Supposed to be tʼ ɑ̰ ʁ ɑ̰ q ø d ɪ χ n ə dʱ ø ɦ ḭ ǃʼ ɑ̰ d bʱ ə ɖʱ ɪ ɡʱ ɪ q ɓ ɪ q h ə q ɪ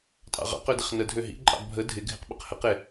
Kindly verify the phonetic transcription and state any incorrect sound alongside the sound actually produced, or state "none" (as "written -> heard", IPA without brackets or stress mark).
ɖʱ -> dʱ